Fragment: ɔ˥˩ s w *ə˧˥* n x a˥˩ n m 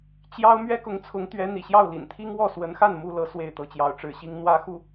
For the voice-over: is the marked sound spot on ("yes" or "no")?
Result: yes